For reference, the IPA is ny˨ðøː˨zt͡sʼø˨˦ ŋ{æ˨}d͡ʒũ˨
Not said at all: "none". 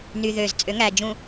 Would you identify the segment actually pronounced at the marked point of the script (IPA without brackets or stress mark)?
æ˨